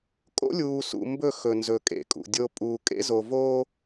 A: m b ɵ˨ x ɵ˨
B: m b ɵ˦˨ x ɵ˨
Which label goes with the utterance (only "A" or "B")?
B